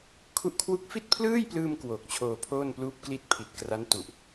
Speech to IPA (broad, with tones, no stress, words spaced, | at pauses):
kʰu˥˩ʔ kʰwu˦˥k̚fi˥˩t̚pʰlɯː˥˩jplɯː˧m kwoː˨˩k̚t͡ɕʰoː˧pʰoː˥˩n pluː˦˥p̚kli˦˥t̚ pʰi˨˩t̚kra˦˥n tu˨˩ʔ